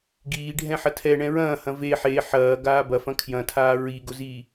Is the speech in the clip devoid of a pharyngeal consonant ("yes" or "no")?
no